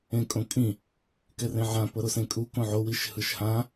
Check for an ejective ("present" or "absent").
present